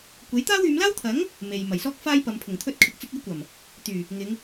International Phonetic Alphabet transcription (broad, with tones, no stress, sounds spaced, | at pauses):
kʷ e˨˥ j t̪ aː˥ w yː˨˧ m l aː˥ w t̪ʰ ɐ˨˥ ŋ | m e˨ j m ɐ˨˩ j s ɔː˥ k̚ f aː˥ j p ɐ˨˧ m pʰ ʊ˨˩ ŋ t̪ʰ ɵ˧ t̚ kʰ ɪ˨ k̚ t͡s ɪ˧ k̚ e˧ j kʷ ɐ˨˩ m | t̪ yː˨˩ | ŋ ɪ˨˧ ŋ